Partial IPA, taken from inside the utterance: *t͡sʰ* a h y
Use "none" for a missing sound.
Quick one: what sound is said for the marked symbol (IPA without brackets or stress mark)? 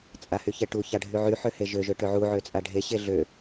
t͡sʼ